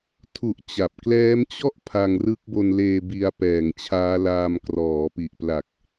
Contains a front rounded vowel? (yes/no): no